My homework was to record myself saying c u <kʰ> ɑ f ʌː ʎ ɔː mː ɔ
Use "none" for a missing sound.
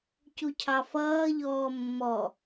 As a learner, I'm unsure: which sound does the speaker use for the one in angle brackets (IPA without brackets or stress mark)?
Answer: cʰ